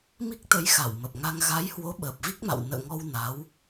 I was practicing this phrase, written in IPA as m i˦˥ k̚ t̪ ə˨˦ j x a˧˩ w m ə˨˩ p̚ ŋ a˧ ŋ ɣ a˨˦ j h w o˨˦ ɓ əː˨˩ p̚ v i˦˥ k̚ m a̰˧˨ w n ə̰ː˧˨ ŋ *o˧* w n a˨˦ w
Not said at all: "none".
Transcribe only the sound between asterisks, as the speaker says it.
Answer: ɔ˧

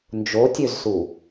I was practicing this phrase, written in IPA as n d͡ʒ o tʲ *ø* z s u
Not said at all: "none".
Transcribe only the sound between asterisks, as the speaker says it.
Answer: ø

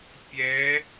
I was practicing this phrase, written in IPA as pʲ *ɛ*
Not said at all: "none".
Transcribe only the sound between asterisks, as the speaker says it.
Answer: ɛ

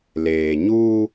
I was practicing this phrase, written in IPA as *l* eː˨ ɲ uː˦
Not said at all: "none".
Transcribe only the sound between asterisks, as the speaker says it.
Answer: l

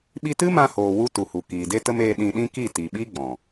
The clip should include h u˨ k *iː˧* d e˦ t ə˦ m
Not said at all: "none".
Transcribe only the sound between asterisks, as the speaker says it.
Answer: iː˨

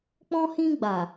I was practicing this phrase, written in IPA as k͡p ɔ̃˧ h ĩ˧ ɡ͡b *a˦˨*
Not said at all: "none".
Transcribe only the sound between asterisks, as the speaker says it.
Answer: a˨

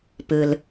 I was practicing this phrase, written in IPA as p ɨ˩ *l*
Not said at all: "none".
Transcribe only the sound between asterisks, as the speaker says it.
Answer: l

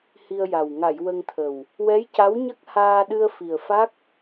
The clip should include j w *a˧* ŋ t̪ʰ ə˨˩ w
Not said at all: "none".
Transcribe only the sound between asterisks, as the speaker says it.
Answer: ə˧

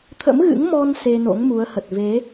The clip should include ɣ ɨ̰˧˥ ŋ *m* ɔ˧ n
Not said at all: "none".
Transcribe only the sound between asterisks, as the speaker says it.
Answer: m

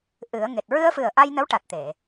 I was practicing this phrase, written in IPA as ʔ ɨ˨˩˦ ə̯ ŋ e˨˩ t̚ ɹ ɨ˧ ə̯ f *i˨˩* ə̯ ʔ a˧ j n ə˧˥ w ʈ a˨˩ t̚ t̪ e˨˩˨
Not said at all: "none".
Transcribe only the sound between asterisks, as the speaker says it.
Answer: ɨ˨˩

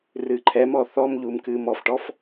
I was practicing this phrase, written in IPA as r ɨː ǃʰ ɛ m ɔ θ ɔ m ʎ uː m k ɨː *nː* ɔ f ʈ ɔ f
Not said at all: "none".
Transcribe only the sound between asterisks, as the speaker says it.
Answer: m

